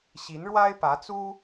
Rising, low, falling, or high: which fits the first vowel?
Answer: rising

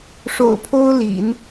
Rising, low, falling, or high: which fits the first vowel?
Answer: low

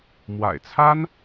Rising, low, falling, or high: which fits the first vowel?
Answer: low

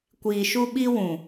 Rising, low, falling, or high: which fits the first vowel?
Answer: low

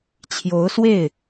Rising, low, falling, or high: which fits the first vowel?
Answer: rising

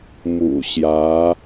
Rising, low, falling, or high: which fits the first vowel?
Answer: low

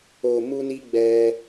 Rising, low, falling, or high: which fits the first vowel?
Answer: low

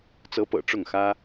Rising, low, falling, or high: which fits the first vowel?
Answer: rising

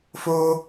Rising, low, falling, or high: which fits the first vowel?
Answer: high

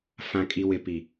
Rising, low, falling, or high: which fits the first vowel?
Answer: low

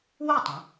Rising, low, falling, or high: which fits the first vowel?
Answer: falling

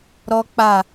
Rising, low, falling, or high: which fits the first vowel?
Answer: high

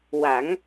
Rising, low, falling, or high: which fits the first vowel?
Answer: rising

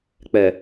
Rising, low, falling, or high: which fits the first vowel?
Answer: low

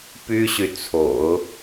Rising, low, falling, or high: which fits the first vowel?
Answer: high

